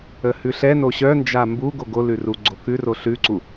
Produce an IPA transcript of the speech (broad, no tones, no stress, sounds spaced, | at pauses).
ə h ʉ ɬ ɛ n o ɕ œ n d͡ʒ a m b u ɡ o ɡ o l ʉ r u ɡ͡ǀ o k ʉ r o ɬ ʉ ǀ u